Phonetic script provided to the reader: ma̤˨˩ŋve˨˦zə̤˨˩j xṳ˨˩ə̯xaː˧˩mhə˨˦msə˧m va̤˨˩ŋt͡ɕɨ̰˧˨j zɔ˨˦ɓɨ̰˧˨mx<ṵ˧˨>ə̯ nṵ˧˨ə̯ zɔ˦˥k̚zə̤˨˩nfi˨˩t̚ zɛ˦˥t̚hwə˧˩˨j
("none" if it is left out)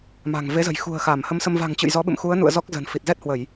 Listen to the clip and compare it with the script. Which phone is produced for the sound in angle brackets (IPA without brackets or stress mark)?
u˨˦